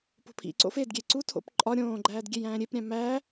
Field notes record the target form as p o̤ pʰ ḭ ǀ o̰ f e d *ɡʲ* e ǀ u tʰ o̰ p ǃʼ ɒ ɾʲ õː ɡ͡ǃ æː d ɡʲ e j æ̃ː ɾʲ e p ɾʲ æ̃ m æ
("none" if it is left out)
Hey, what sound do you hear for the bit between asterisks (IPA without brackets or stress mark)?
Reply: ɡʲ